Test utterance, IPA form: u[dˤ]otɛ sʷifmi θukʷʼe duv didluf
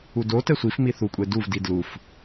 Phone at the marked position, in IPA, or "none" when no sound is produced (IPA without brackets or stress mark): d